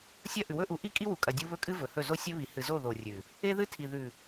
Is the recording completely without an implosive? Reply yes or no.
yes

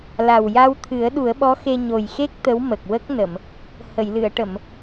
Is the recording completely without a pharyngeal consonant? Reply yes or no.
yes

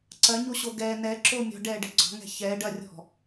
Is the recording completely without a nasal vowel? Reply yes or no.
yes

